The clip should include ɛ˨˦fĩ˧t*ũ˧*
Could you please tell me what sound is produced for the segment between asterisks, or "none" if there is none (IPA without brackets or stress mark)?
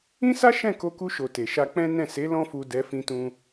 ũ˧